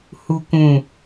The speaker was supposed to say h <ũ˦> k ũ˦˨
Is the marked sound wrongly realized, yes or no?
yes